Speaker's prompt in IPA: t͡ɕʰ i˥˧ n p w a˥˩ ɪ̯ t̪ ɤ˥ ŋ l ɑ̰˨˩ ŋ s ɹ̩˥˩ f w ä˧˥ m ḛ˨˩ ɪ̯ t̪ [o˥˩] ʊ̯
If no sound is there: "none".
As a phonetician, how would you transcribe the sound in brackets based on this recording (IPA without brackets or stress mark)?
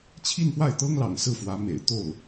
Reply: o˥˩